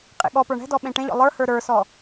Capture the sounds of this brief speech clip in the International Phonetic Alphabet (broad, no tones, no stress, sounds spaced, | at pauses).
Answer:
qʼ ḛ ɠ ɔ p ə˞ ɳ ɛ̤ d ɔ ɓ ẽ ʈ ẽ ʎ ɔ̰ lˠ ə˞ h ə˞ ɾ ə˞ s ɔ